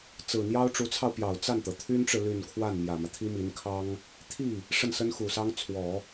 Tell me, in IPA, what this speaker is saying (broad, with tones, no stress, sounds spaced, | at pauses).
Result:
t͡s ɹ̩˨˩ n̪ j ɑ˥ ʊ̯ ʈ͡ʂ u˧˥ t͡sʰ ɑ˧ ʊ̯ p j ɑ˨˩ ʊ̯ t͡s a˥˩ n t̪ ɤ˩ t̪ʰ y˥ n ʈ͡ʂ ɻ̩˨ l y˥˧ n kʰ w a˥˩ n m j ä˨˩ m ä˦ t̪ʰ i˥ m i˧˥ n kʰ ɑ˥ ŋ | t̪ʰ i˥˩ | ʂ ə˥˩ n s ə˥ n x u˨˩ s ɑ˥ ŋ t͡sʰ w ɔ˨˩˦